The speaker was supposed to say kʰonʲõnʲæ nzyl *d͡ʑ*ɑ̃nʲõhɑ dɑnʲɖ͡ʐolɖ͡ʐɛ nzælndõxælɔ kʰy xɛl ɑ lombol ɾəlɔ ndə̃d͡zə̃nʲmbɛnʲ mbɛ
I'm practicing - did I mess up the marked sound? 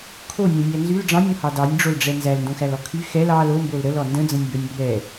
yes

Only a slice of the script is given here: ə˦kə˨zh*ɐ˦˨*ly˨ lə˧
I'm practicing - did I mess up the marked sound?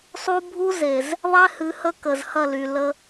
no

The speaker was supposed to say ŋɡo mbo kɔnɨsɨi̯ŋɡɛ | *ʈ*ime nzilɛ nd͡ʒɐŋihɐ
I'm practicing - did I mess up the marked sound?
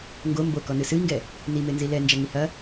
yes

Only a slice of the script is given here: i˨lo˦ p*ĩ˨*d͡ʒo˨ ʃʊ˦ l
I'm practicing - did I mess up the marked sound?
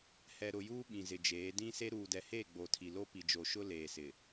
yes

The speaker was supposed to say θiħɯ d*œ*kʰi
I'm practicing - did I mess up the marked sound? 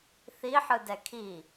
yes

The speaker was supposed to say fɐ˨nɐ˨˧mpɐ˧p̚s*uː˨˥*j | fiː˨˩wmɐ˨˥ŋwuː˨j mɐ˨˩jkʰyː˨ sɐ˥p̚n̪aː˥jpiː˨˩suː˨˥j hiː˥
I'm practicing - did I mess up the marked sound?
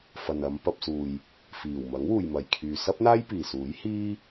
yes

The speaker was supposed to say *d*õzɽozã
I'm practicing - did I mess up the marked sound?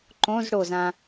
yes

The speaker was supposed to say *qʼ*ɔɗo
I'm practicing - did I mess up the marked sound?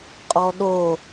no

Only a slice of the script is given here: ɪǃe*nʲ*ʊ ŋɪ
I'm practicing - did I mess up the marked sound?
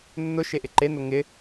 yes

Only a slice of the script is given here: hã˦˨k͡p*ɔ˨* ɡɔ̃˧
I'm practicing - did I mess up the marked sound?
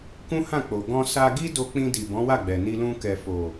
yes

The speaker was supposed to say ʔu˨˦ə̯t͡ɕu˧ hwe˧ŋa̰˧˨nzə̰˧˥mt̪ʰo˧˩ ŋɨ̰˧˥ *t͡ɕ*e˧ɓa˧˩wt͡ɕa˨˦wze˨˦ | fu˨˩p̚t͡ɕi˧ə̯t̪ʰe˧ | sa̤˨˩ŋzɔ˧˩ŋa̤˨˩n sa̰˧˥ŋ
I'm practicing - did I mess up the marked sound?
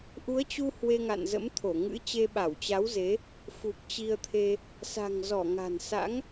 no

